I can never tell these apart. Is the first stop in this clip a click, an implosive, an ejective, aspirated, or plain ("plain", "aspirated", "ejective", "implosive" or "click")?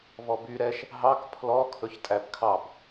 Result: plain